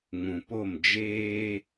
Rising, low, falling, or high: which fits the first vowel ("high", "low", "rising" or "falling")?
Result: low